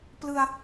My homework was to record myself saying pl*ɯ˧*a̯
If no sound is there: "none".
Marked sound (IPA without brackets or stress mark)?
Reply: ɯ˧